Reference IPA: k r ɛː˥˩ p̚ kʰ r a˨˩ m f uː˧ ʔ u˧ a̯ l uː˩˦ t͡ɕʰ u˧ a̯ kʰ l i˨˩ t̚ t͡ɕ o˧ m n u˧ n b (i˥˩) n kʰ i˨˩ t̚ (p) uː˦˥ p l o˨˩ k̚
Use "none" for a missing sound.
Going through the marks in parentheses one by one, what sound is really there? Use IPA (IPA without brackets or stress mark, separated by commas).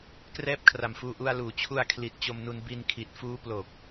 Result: i˧, f